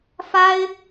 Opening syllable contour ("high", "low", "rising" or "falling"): high